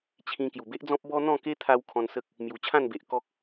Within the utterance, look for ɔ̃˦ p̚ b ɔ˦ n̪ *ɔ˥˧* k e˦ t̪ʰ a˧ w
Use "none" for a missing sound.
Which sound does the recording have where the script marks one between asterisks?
ɔ̃˥˧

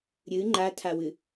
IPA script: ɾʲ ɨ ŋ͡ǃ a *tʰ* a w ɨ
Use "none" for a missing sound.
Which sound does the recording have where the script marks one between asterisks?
tʰ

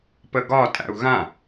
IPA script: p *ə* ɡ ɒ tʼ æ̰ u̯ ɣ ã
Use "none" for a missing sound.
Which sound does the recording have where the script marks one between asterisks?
ə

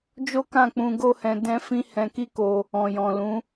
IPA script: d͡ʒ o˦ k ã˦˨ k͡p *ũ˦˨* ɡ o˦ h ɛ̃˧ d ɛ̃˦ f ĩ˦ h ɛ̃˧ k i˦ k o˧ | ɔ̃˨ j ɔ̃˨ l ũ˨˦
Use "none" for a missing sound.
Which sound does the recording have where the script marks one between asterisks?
ũ˧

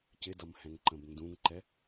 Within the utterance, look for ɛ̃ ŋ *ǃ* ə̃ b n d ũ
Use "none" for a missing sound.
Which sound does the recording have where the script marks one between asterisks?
ǃ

